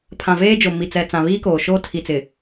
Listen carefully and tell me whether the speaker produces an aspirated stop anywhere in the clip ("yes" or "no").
yes